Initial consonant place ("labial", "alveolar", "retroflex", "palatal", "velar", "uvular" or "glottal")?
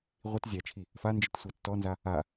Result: uvular